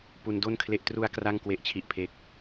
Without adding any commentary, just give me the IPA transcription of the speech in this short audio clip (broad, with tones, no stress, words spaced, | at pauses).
pu˧ndo˥˩nkʰle˦˥ʔ tru˧a̯ kra˥˩ŋkwe˦˥ʔt͡ɕʰi˦˥ʔpʰe˦˥k̚